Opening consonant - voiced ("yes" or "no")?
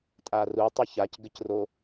no